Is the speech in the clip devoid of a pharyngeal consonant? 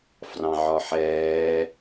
no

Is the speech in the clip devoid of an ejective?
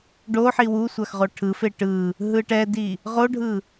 yes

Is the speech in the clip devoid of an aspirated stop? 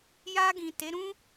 yes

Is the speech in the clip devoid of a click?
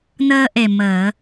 yes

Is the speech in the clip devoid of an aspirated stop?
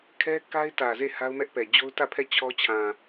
no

